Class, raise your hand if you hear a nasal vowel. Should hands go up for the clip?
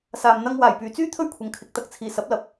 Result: no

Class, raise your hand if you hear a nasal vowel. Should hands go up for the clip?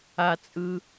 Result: no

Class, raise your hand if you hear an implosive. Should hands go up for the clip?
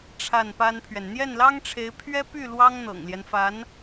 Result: no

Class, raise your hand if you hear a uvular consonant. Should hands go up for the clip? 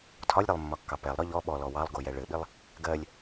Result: no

